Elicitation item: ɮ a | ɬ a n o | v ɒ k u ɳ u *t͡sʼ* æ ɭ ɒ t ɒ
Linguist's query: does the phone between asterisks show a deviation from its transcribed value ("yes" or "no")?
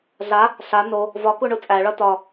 no